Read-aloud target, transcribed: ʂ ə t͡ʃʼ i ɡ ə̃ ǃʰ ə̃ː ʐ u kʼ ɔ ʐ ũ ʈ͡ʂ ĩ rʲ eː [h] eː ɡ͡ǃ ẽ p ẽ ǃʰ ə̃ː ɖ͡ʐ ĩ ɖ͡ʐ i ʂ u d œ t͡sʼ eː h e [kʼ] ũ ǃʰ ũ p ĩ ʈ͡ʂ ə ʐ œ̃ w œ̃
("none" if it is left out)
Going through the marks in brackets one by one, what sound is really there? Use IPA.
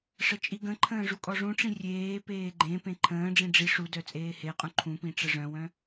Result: p, qʼ

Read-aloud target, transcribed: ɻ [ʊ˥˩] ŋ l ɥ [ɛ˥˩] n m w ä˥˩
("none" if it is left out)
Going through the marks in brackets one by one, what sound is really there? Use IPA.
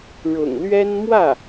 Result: ʊ̰˨˩, ɛ˥

